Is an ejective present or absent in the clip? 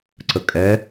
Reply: present